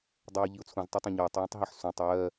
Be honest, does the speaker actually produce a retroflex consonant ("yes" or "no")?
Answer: no